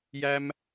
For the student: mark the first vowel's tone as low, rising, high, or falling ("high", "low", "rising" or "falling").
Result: high